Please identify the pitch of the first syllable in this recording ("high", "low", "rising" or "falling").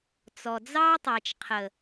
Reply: low